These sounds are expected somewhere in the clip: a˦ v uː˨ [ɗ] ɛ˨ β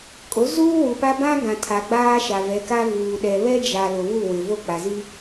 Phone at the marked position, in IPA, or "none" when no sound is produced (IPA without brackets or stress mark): ɗ